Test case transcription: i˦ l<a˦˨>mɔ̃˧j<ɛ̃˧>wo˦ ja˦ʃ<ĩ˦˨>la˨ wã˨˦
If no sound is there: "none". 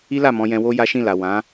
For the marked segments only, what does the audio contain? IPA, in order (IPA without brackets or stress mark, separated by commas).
a˦˨, ɛ̃˧, ĩ˦˨